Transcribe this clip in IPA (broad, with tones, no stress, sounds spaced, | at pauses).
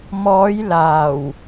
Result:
m ɔː˨˧ j l aː˨˩ w